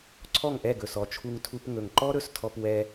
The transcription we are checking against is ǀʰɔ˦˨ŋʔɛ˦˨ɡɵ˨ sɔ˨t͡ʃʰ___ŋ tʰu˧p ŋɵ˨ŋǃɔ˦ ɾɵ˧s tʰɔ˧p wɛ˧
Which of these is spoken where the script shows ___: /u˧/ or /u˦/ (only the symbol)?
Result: u˧